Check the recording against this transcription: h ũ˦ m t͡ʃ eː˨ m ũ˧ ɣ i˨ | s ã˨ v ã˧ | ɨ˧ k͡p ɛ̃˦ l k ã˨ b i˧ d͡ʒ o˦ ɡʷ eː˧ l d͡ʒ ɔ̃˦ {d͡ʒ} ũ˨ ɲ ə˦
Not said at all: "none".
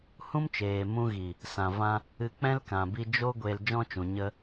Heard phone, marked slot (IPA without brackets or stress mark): t͡ʃ